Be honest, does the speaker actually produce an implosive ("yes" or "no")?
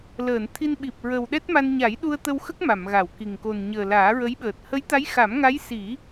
yes